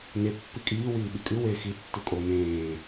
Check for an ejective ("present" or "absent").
present